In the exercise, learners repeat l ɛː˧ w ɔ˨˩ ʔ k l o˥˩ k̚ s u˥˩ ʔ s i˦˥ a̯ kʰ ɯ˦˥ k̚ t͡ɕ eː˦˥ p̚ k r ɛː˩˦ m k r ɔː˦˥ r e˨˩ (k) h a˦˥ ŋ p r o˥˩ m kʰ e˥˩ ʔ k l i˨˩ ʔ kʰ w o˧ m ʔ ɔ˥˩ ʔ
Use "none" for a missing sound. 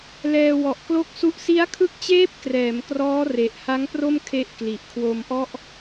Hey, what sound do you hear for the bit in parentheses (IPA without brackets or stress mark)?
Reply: ʔ